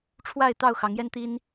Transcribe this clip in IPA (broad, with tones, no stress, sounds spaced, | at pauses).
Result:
ʈ͡ʂʰ w a˥˨ ɪ̯ t̪ ɑ˥˨ ʊ̯ x ɑ˨˦ ŋ j ɛ˦ n t̪ i˦ n